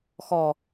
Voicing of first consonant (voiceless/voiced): voiceless